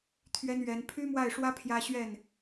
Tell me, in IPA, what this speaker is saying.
t̪ʰ ɥ ɛ˥ n ɥ ɛ˧˥ n pʰ y˥ m w a˥˩ ɪ̯ ʂ w ä˥ pʰ j ä˥ ɕ ɥ ɛ˥˩ n

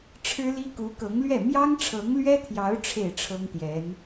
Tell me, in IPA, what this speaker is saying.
ʈ͡ʂʰ ɻ̩˥ l i˥ k u˧˥ k ɤ˧˥ ŋ l ɥ ɛ˥˩ m j ɑ˥ ŋ ʈ͡ʂʰ ɤ˧˥ ŋ l ɥ ɛ˥ t̪ʰ j ɑ˧˥ ʊ̯ ʈ͡ʂʰ e˥˩ ɪ̯ ʈ͡ʂʰ ɤ˥ ŋ t̪ j ɛ˧˥ n

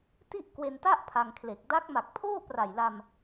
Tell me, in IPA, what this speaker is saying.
t i˥˩ ʔ k w e˧ n t a˥˩ ʔ pʰ a˧ ŋ kʰ l e˨˩ k̚ d a˦˥ k̚ m a˨˩ k̚ pʰ oː˥˩ p r a˨˩ j l a˧ m

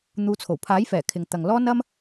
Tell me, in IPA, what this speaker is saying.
n̪ uː˨˧ t͡sʰ o˨˩ w pʰ aː˨˥ j f ɛː˨˩ kʰ ɪ˨ ŋ t̪ ɐ˨ ŋ l ɔː˥ n ɐ˥ m

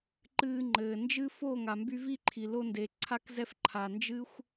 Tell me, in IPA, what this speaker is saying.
ǃ ɨː˧ ŋ͡ǃ ɘː˨ n d͡ʒ ɨ˦ f o˦˨ ŋ a˨ m b y˧ v i˦˨ ǃʰ i˨ l o˧ n d e˨ ǀʰ a˧ k z ɛ˧ f ǃʰ a˨ n d͡ʒ ɨ˦ xʷ

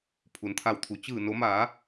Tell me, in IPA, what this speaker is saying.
pʰ u˩ n t̪ʰ a˧˩ w t̪ʰ u˩˧ t͡ɕ ɯː˧˩ n o˩˧ m aː˩˧

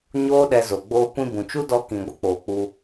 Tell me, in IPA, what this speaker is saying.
ɲ oː˦ ɗ ɛ˧ z o˨ ɡ͡b oː˦ kʷ ĩ˦ b ũ˨ t͡ʃ u˦ d ɔ˧ k ĩ˨ ɡʷ ə˦ k͡p oː˨ k͡p u˧

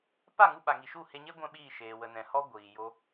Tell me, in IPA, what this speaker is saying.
p a˦˨ ŋ u˧ ɓ a˨ ŋ i˨ ʃ u˦˨ h e˧ ɲ e˦ ɡʷ ɛ̃˦ ɓ iː˦˨ ʃ eː˨ w ə˨ n ɛ̃˨ h ɔ˦ ɡʷ iː˨ j o˧

